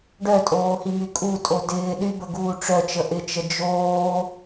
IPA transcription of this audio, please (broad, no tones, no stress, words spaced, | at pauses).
ɖœtʼoːhimy kʼutʼo dɪː ɗybəɡuː ʈ͡ʂœt͡ʃə ʔɪt͡ʃə d͡ʒoː